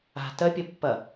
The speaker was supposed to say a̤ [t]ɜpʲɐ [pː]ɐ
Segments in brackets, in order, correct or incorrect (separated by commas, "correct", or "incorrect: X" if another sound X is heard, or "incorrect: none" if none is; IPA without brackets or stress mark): correct, correct